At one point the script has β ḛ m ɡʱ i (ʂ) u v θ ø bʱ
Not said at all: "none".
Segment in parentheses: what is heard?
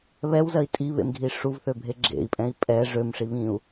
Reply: ʂ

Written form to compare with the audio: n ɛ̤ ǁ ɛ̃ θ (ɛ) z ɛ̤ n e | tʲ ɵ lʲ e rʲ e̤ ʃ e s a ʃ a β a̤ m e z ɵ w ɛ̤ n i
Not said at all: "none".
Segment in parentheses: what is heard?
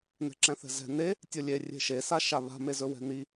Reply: ɛ̤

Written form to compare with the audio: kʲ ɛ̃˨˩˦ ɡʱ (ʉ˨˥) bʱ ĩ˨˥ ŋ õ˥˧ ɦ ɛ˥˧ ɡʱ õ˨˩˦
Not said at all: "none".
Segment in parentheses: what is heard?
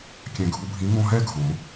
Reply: u˨˥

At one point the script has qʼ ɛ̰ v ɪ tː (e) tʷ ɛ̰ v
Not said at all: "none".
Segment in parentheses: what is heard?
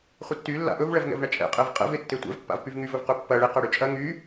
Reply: e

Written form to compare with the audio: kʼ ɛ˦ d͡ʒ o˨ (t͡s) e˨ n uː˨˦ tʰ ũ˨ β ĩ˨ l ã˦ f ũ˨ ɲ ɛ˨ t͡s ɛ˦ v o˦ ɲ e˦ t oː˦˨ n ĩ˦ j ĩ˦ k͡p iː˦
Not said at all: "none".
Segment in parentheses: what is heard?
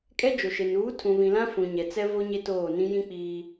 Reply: ʃ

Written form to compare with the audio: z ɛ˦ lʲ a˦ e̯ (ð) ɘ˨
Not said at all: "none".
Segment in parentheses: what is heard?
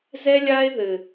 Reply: ð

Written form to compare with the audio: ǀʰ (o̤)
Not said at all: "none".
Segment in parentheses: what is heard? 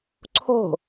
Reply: o̤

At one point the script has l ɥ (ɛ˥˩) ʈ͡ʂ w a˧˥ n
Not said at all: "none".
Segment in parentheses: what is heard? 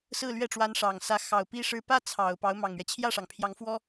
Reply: ɛ˥˩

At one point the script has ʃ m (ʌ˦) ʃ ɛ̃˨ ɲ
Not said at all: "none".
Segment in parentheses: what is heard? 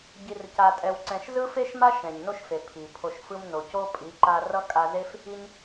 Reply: a˦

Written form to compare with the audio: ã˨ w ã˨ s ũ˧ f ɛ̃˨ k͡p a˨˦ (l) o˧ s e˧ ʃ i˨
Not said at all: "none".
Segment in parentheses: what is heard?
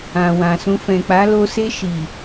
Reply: l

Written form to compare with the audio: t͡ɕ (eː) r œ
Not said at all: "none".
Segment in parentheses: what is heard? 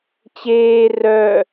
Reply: eː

